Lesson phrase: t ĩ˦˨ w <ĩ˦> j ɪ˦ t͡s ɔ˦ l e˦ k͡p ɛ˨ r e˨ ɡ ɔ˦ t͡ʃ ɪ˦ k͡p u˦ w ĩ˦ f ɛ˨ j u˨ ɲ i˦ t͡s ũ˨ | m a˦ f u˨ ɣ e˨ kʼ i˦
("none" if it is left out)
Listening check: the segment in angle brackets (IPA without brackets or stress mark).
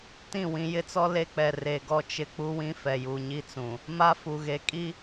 ĩ˨